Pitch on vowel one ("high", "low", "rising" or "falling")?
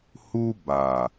high